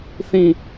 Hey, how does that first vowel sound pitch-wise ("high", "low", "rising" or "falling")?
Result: high